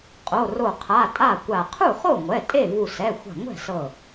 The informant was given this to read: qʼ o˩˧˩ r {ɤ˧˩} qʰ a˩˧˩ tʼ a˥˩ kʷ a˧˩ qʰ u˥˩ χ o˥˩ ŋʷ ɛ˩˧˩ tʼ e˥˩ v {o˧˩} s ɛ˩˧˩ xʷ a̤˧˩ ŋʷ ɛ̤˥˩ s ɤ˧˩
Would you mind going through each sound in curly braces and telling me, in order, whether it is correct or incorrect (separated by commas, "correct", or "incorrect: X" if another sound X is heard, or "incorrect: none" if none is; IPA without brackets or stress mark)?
incorrect: o˧˩, incorrect: u˧˩